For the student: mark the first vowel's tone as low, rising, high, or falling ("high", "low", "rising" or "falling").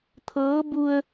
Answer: rising